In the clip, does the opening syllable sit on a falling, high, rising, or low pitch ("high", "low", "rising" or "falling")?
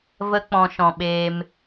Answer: high